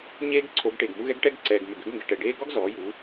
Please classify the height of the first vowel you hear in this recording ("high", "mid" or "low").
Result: mid